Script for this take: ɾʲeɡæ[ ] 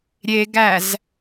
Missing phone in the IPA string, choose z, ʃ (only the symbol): z